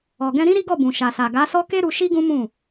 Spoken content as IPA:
ɔ˨ɡɛ̃˧ɾĩ˦ ɾi˦ɡɔ˦˨bũ˨ ʃa˨sa˨ ɡa˨˦sɔ˦ke˦ɾu˧ ʃi˦ɡũ˦mũ˦˨

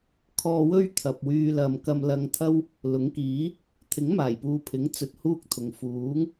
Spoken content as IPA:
kʰɔː˧wɵ˥ɥ t̪ʰɐ˨p̚wyː˧ lɐ˨mkɐ˧m lɐ˧ŋt̪ʰɐ˥w | lʊ˨˥ŋkiː˨˥ | t̪ʰɪ˨˥ŋmaː˨˩jpuː˨ pʰɪ˨˥ŋt͡sɵ˨t̚ huː˥k̚t̪ʰʊ˨ŋ fuː˨˥ŋ

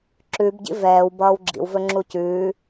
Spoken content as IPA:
ǁʉbɟḭ vɛːw bʌːwɡ͡ǁḭw vɵŋ͡ǁucʉː

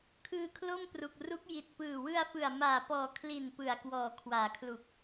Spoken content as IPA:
kʰɯː˧kʰlo˥˩mpru˨˩k̚ru˦˥k̚ ji˨˩t̚pɯː˨˩ wɯ˧a̯fɯ˨˩a̯maː˨˩pɔː˨˩ kʰli˨˩n pɯ˨˩a̯kwɔː˨˩ kʰwaː˩˦kʰlu˨˩k̚

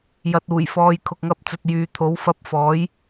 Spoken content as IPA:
jɐ˨t̚uː˨˩j fɔː˨j kʰʊ˨k̚ŋɐ˧p̚t͡sɵ˨t̚ jyː˨t̪ʰo˨˥w fɐ˧p̚fɔː˨˥j

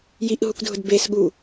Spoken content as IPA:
jiʔɦukdʱʊd besɠu

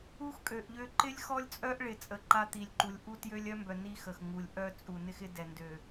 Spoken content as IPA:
u˦xkʼø˨ʔʎø˦ ǃɪ˦lʲxɔ˦lʲt͡sʼœ˦ʔɭɪ˨ t͡sʼə˨ǃa˦t̪i˨lʲǃu˨lʲ ʔu˦tjø˦lʲœ˦mbœ˨ ni˦xə˨x ŋu˨lʲʔœ˦ t͡sʼu˨nɪ˦xɪ˦ dɛ˨ndø˨

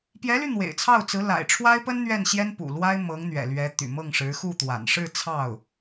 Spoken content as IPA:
pjɛ˧˥ly˧ n̪wḛ˨˩ɪ̯t͡sʰɑ˥˩ʊ̯t͡sɹ̩˧˥ la̰˨˩ɪ̯ʈ͡ʂʰwa˥ɪ̯pə˥n n̪ɥɛ˥˩nɕjɛ˥npṵ˨˩lwa˥ɪ̯ mɤ˧˥ŋ n̪ɥɛ̰˨˩lɥɛ˧˥ t̪y̰˨˩mɤ˥˩ŋʂɻ̩˧˥ xu˥˩t̪wa̰˨˩n ʂɻ̩˥˧ t͡sʰɑ˥˩ʊ̯

